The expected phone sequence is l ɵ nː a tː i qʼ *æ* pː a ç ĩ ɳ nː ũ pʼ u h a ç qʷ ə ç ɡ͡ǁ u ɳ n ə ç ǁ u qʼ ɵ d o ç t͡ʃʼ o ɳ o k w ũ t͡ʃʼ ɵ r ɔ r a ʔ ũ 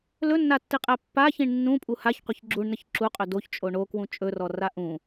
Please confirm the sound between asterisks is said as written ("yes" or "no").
yes